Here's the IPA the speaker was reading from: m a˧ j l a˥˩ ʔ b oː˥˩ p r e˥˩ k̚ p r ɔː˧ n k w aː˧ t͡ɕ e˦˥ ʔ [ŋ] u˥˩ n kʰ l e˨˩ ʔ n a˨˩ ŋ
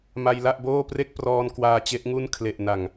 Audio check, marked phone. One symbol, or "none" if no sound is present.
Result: ŋ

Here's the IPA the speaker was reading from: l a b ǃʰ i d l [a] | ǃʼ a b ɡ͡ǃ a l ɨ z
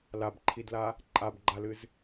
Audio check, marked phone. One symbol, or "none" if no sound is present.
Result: a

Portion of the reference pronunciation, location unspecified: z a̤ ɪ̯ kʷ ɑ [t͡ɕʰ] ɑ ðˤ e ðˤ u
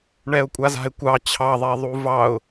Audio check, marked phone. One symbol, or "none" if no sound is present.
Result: t͡ɕʰ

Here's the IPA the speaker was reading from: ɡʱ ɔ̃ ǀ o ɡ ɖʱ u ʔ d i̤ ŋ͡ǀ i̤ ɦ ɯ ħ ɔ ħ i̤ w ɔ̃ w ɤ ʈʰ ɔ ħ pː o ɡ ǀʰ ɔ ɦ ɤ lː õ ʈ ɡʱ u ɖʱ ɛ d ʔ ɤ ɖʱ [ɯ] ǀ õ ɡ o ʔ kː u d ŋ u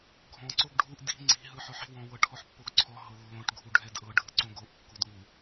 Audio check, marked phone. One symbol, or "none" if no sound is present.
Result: ɯ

